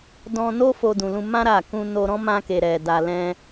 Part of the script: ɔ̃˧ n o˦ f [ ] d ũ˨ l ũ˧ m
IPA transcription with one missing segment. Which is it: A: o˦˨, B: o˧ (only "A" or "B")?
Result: B